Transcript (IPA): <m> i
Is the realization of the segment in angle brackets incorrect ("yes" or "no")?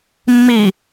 yes